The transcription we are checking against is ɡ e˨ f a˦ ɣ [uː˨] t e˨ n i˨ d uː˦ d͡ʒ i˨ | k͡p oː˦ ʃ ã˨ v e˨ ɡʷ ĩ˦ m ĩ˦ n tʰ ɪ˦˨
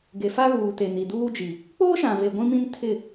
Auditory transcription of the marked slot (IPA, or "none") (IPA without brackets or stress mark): uː˨